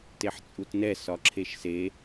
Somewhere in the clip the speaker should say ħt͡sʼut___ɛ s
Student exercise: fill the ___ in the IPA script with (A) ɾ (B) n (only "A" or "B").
B